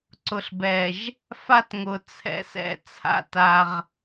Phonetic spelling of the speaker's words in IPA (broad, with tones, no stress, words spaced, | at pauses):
ǀʊ˨ɬbɛ˨ʒ | fa˦tŋʊ˨t͡sʰɛ̰˨sɛ̰˨ t͡sʰa̰˦ta˦ʁ